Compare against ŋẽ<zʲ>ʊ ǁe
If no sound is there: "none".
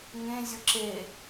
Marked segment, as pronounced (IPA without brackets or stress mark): zʲ